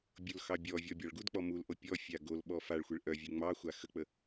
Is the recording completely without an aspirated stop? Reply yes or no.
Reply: yes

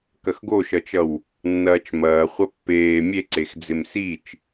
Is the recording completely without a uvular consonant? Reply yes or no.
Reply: no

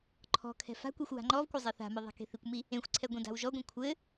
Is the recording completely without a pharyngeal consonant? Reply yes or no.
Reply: yes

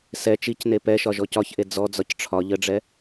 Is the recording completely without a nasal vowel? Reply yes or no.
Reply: yes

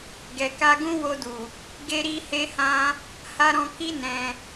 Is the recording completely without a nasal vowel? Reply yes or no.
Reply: no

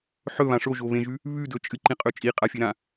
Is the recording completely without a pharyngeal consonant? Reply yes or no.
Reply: no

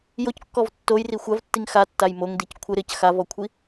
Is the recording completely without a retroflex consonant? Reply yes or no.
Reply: yes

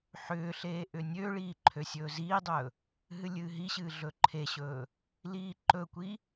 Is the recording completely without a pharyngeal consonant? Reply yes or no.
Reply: no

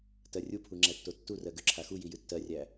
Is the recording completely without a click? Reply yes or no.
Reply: no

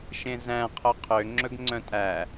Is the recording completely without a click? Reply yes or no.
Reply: no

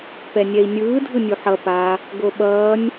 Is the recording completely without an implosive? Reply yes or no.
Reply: no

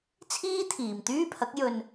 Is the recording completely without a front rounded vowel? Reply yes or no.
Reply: no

